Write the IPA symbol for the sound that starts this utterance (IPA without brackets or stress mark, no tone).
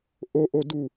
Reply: ʔ